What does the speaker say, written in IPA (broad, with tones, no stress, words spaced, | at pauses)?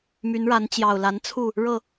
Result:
my˨˦nɻa˨˦n t͡ɕjɑ˨˩ʊ̯la˨˦nt͡sʰu˥˨ | ɻɤ˥˨